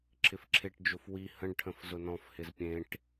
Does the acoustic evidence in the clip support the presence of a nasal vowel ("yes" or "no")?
yes